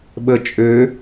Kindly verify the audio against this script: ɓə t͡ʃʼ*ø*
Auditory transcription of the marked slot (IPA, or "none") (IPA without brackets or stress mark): ø